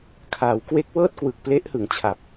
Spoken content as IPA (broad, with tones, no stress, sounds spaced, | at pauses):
kʰ aː˩˦ w k w e˦˥ k̚ w ɤː˥˩ t̚ k w ɯ˨˩ k̚ p l e˦˥ ʔ h ɯ˩˦ ŋ t͡ɕʰ a˨˩ p̚